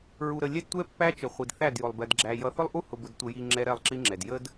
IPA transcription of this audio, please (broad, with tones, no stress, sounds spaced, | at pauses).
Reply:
ɹ u˨ ɾ ə˨ lʲ ɛ˦ d tʷ ɛ˦ pː æ˦ t͡ʃ ə˨ χʷ i˨ d θ æ˦˨ d j ʊ˨ lˠ b ɛ˨ d ɡ͡ǁ æ˨ j ʌ˨ θ ʊ˦ lˠ ʔ u˦ h ʊ˨ b ʊ˨ d tʷ ə˨ j i˨ ŋ͡ǁ ɛ˦ ɾ ɛ˦˨ lˠ ǁ i˦ ŋ͡ǁ ɛ˨ d j ə˦ d